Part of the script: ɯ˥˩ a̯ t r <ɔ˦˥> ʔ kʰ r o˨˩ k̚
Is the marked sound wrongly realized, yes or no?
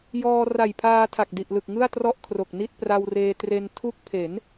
yes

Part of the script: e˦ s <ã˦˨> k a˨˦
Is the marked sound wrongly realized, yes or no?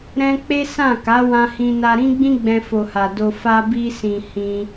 no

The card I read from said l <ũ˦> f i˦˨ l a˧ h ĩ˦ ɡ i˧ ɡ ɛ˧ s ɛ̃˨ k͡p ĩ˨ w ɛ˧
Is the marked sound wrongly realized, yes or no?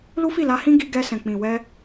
yes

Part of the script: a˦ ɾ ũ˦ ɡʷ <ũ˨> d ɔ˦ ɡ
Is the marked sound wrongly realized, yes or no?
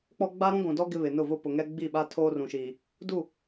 no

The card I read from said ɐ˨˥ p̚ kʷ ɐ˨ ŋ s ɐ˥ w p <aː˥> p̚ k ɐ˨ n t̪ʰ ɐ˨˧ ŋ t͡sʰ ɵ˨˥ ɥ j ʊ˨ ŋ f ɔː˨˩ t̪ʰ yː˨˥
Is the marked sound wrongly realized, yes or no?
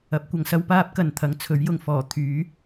no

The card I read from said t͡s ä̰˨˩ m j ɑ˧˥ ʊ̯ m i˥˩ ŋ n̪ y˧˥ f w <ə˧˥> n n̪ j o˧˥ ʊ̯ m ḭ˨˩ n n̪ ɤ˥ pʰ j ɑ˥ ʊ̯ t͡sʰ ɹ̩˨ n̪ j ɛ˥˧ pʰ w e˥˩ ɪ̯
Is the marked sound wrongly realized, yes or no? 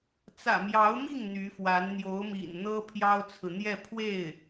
yes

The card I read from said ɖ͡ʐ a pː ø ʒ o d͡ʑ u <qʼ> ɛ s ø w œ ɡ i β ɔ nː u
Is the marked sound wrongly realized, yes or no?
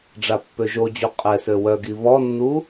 no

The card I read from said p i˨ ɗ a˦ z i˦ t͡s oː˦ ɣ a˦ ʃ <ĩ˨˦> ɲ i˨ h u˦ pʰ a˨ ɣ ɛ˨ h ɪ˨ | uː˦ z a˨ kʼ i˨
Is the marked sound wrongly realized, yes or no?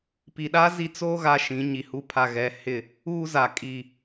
no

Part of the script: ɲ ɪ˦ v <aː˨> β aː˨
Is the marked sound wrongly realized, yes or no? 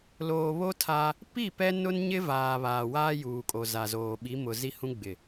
no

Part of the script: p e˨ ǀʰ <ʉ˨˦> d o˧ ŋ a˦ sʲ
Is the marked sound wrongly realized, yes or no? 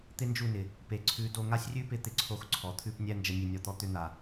no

